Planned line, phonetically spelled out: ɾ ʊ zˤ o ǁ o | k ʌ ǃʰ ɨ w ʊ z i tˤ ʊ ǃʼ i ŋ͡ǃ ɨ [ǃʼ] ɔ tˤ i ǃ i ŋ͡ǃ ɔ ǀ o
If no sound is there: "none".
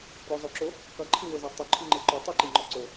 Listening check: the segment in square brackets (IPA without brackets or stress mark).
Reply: ǃ